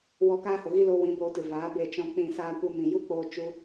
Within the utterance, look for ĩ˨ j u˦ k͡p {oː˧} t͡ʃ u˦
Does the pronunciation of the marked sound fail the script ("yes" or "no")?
no